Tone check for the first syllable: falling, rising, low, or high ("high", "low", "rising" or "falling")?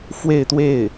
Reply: falling